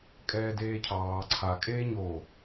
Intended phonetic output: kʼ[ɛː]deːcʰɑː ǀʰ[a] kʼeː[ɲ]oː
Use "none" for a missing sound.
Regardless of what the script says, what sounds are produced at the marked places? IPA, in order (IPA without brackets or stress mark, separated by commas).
ɛː, a, ɲ